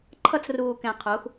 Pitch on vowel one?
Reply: high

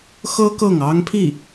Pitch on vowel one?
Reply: high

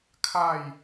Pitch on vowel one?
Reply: falling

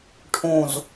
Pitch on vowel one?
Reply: low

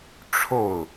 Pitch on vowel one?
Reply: falling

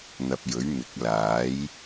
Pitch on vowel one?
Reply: low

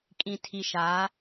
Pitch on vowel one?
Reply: low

